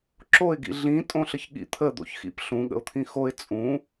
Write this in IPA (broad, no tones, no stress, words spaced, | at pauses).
ǁoɪ̯ɡḭ ɮĩ tʼõɬəçɠḭ t̪ʰə d̪o̰çxḭp ɬũɠə̰ʊ̯ t̪ʰĩxoɪ̯ t͡sʼũ